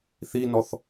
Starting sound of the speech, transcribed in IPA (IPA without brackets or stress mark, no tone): θ